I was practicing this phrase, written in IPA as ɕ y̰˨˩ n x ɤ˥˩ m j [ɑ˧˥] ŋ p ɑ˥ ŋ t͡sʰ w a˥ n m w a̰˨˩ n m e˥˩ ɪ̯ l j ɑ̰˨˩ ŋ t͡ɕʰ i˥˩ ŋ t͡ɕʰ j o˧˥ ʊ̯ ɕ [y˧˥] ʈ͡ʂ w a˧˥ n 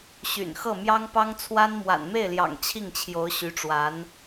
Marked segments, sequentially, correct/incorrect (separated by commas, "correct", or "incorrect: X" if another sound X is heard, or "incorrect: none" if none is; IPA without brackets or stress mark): incorrect: ɑ˥, correct